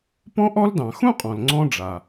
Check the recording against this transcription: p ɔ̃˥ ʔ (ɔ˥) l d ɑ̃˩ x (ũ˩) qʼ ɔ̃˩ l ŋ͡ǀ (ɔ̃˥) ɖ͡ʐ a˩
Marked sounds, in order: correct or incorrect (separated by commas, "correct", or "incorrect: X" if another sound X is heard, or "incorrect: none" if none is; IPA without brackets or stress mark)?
correct, incorrect: ũ˥, incorrect: ɔ̃˧